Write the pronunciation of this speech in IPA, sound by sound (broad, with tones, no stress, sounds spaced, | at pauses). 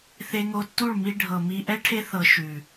θ e˧ ŋ o˧ tː u˦˨ ɭ m i˧ ɖʱ ɤ˨ m i˧ ʔ ɛ˦ ʈʰ e˦ θ ɤ˧ ʃ ʉ˨